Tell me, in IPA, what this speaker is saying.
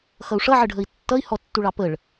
x ʌ u̯ ʂ ʌ ʕ ə ɖʱ ə i̯ tː ʌ i̯ h ɔ tː u ɭ ɑ p ə ɭ

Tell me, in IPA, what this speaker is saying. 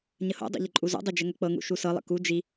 ɲ ə h o̰ dˤ ṵ ʎ ə ǃʼ u z o̰ dˤ i d͡ʒ ə ŋ ə k͡p ɤ ŋ ṵ ʃ u s ɤ lˠ ə̰ k u d͡ʒ i

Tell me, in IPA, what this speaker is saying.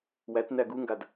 w æ t n æ ɡ u ŋ ɡ a d

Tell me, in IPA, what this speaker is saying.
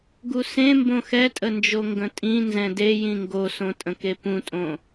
ɡ u s ẽ m b õ x ɛ tʼ ə n d͡ʒ o ŋ ɡ ə̃ tʼ ĩ n z ɛ̃ d e j ĩ ŋ ɡ o s õ tʼ ə̃ k e p ũ tʼ õ

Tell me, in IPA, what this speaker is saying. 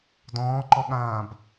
d ɔ̃ː ǃ ɔ ɠ ãː b

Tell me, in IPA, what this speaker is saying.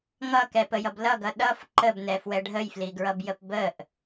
ŋ ʌ k ɛ p ə j ʌ b l ʌ ɡ ʌ ɗ ʌ f ǃ ə b n ɛ f w ɛ ɖʱ ə j f l i ɡ ɹ ʌ b j ə p b ə ʔ

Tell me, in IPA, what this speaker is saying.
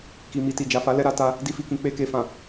k i˨ m i˨ t i˨ d͡ʒ a˨ f a˨˦ l ɛ˧ ɾ a˧ t a˧ | d i˧ f i˨ k ĩ˨ k͡p e˧ k e˨ f ã˨

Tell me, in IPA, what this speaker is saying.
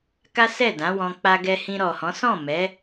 k a˦ s ɛ˦˨ d ã˨˦ w ɔ̃˧ k͡p a˧ ɡ ɛ˧ h ĩ˧ ɾ ɔ˨ h ɔ̃˨˦ s ɔ̃˦˨ m ɛ˨˦

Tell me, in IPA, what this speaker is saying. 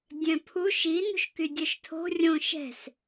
dʲ œ̃ pʰ u ʃ i n ṳ ʃ k y dʲ œ ʃ tʰ o̤ rʲ õ ʃ ɛ̤ s

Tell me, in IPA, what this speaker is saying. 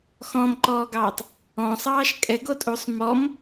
x ɔ̃ m ǃ ɔː ɡ ɑː tˤ | ɔ̃ sˤ ɑː ʃ kʼ ɛ ɡ o tʼ u sˤ m ɔ m

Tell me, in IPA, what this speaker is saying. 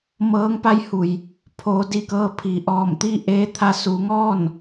m ɤː˧˥ ŋ p a˧˥ j h u˩ j | pʰ oː˩˧ d i˧˩ k ɤː˧ pʰ i˩ ʔ ɔː˧˩ m t̪ i˥˨ ʔ eː˧ t̪ʰ a˧ s u˩˧ ŋ ɔː˥˨ n

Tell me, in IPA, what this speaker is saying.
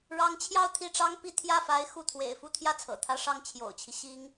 ɻ ɑ˧˥ ŋ t͡ɕʰ j ɑ˥˧ ʊ̯ t̪ʰ i˥˩ ʈ͡ʂ ɑ˥ ŋ p i˥˧ t̪ʰ j ä˥˩ f a˧˥ ɪ̯ x u˥˩ t̪ʰ w ḛ˨˩ ɪ̯ f u˥˧ t̪ʰ j ä˥˩ t͡sʰ ɤ̰˨˩ t̪ʰ ä˥ ʂ ɑ˥˩ ŋ t͡ɕʰ j o̰˨˩ ʊ̯ t͡ɕʰ i˦ ɕ i˥ ŋ

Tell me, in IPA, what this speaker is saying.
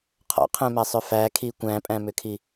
qʰ ɔ̰ qʰ ɛ̃ m æ sˤ ʏ f æ kʰ i kʷ æ̃ pʼ æ̃ m ʏ kʰ i

